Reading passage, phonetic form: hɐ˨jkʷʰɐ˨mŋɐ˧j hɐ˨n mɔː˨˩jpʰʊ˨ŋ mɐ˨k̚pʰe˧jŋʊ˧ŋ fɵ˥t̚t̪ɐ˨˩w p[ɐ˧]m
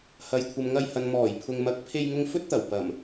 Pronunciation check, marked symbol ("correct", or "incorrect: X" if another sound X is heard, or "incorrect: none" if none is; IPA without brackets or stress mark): incorrect: ɐ˨˩